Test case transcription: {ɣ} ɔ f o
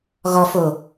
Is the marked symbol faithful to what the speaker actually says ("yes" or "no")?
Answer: yes